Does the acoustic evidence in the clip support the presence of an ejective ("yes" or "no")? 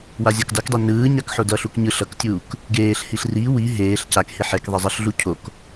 no